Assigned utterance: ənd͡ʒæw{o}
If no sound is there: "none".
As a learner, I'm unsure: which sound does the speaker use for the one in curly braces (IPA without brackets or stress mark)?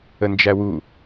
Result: u